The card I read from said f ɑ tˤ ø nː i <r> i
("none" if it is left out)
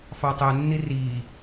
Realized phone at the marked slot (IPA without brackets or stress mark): r